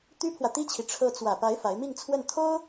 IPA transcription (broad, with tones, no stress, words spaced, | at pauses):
t̪y˥pʰwä˨t̪i˥t͡ɕʰi˨ ʈ͡ʂʰɤ˧˥t͡swä˨˩pa˧˥ɪ̯ fa˧˥ɪ̯mi˥˧ŋt͡sʰwə˥˩n t̪ʰo˥ʊ̯